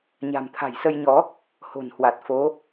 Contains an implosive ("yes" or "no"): no